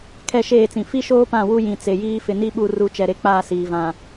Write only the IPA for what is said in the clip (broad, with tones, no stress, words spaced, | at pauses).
kʰɛ˦˨ʃeː˦˨t͡sĩ˨ fi˦ʃoː˦pã˦˨ wu˦jĩ˨t͡se˨jiː˦ fɪ˨ni˦ɓu˦˨ ru˨˦t͡ʃɛ˨ɾe˨ k͡paː˦˨siː˨vã˨